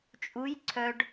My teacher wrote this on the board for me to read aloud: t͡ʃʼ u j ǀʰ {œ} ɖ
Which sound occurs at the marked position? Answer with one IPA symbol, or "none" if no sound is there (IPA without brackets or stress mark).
œ